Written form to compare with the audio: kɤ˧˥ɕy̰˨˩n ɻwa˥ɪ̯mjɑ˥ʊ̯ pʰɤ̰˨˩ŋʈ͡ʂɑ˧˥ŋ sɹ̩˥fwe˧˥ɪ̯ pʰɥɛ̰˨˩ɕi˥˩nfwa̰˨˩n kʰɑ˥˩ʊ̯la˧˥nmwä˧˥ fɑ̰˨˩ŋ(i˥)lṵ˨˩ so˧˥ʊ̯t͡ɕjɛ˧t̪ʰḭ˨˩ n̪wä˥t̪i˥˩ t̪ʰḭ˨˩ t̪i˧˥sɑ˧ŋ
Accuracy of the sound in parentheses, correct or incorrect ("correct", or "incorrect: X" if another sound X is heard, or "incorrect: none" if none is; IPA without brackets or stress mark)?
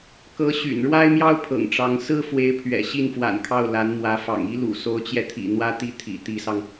correct